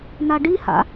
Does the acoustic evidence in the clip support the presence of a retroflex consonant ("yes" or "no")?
yes